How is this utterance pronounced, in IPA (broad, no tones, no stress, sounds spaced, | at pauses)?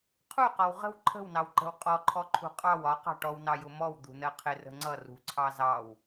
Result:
qʰ u q ɒ w ʁ ə̤ w ǃʰ ə̤ w n ɑ w ǃ ə̤ w qʼ ɔ ǃʰ ɔ ǃʰ ṳ qʼ ɑ w ɒ q ɑ̤ ʈ ɔ w n ɑ j ʊ m ɔ w d̪ ṳ n ɜ qʰ ɪ r ə̤ ŋ͡ǀ ʌ r ṳ ǀʰ ɑ z ɑ w